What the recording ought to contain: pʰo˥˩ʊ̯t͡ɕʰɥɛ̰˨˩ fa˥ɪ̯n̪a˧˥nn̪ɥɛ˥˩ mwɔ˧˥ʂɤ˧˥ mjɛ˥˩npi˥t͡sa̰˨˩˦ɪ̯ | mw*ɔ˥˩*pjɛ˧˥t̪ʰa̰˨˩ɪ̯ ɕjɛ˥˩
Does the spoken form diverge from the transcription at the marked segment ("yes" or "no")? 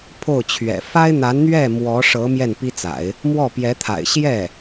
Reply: no